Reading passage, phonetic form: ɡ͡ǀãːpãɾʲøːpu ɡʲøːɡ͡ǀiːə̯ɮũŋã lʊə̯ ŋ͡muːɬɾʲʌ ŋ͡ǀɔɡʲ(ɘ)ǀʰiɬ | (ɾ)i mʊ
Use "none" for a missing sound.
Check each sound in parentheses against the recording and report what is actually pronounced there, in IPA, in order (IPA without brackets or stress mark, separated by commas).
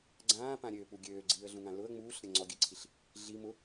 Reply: ɘ, ɮ